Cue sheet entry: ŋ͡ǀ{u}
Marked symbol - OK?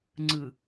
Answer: no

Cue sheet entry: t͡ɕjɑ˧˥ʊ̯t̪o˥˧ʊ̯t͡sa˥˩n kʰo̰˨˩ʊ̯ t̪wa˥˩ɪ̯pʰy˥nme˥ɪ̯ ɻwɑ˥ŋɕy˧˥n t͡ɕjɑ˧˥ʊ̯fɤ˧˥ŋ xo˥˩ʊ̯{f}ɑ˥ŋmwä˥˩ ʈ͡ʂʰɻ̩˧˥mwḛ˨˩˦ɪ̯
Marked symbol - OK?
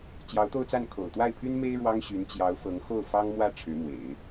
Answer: yes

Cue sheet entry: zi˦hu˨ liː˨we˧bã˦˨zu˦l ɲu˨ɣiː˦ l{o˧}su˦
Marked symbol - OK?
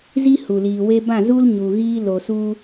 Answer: no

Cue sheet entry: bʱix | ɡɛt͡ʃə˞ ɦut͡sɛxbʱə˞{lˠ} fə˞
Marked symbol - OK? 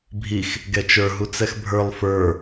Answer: yes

